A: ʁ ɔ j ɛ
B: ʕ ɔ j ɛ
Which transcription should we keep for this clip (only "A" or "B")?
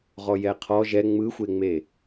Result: A